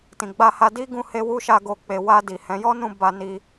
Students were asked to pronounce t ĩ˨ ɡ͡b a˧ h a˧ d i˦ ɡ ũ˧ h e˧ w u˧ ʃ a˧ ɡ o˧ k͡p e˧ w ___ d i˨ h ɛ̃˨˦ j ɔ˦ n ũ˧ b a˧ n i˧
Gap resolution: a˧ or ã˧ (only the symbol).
a˧